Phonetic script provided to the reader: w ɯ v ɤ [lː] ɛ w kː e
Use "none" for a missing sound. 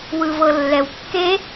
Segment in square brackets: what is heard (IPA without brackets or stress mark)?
lː